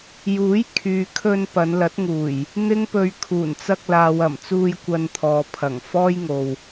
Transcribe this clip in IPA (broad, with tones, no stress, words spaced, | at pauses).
juː˨˥jkʰyː˨kʰɵ˧n pɐ˨˧nlɐ˨˥t̚ŋuː˨˩j | n̪ɪ˥ŋpɵ˧ɥ kʰuː˨˩nt͡sɐ˧k̚laː˨w ɐ˨˩mt͡suː˧j kʷɐ˧nt̪ʰɔː˨pʰɐ˨˩ŋ fɔː˥jŋo˨w